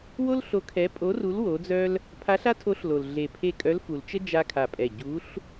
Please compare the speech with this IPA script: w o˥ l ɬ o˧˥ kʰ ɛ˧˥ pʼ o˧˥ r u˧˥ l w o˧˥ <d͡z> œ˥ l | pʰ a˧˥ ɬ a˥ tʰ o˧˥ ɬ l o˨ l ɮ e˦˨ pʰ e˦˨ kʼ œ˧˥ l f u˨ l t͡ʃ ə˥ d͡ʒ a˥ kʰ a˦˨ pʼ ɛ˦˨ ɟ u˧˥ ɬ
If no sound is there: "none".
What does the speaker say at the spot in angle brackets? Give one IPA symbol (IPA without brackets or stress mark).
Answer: d͡z